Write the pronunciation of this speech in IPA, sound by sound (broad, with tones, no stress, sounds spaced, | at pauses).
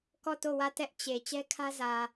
k ɔ˦˨ t o˦˨ w ä˦˨ t ɛ˦ ʔ t͡ɕ e˨ t͡ɕ ɛ˦ kʰ ä˦ z ä˨